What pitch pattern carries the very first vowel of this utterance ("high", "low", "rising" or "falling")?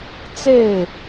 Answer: falling